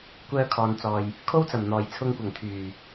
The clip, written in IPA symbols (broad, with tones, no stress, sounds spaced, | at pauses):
kʷ œː˧ kʰ ɔː˨ n t͡s ɔː˨ j | kʰ o˥ w t͡s ɐ˨˩ m n̪ ɔː˨˩ j t͡sʰ ʊ˧ ŋ kʷ ɐ˨˩ ŋ t̪ʰ yː˨˩